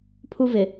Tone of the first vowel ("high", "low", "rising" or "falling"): high